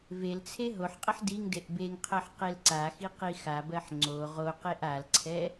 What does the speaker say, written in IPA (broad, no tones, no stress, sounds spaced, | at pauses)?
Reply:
v e l t͡sʰ e ɦ o ħ qʼ ə ħ d i ŋ d e ʔ b e ŋ qʰ ɜ ħ q e l ǀ a x i q i x a b ɜ ħ ŋ͡ǀ o ʁ o q e ʔ a l ǀʰ ɛ